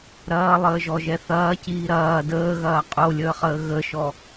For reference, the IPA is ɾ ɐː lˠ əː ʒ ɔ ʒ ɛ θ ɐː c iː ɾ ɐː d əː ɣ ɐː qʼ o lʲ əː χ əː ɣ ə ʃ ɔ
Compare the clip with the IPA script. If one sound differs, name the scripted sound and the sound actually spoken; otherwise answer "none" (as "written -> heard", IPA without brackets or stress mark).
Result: none